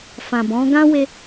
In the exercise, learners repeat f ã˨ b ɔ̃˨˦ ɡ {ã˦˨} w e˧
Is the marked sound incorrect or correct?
incorrect: ã˦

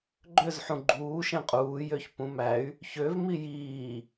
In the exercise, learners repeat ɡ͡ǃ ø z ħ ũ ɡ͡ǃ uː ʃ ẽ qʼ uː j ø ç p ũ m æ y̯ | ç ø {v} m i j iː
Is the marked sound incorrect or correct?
correct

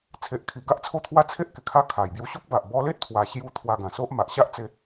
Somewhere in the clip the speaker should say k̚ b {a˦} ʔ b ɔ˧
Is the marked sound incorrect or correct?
incorrect: a˨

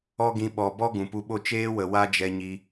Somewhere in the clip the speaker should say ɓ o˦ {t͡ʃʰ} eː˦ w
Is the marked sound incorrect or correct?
incorrect: t͡ʃ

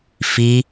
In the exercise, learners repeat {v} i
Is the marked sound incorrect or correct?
incorrect: f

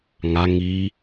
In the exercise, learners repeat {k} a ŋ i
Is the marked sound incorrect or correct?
incorrect: ŋ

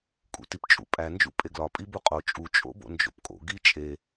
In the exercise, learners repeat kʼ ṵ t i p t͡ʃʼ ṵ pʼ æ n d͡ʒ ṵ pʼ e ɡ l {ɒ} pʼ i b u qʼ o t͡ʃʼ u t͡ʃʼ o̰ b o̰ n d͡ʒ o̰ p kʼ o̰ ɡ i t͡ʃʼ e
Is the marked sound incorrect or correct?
correct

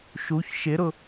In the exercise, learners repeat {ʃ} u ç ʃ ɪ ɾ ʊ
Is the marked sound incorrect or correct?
correct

